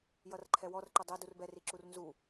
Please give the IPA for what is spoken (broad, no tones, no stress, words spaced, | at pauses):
jʌrǃʰɛwɔrǃɛ dˤɛ durbɛri ǁurnzu